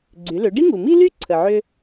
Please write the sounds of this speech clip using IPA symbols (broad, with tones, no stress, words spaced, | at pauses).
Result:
ɡ͡ǀy˩˧lʏ˩˧ ɖi˥ŋu˩mi˥ly˥ ǀʰə˩ʕʏ˧